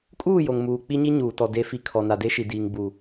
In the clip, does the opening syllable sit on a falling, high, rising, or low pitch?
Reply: falling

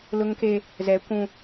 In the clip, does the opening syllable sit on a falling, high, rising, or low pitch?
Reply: high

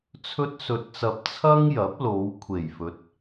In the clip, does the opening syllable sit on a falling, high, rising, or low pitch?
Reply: high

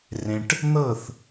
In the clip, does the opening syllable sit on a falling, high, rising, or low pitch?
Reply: low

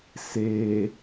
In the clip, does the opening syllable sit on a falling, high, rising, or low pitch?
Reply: low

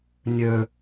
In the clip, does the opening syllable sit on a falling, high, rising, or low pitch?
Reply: high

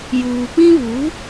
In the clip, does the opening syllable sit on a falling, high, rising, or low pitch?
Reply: low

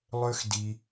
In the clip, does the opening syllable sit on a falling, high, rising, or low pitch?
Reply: high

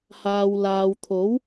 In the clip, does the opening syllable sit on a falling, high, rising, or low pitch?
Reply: low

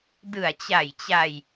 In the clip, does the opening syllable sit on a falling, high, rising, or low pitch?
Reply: low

